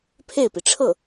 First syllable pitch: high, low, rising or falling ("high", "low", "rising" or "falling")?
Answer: falling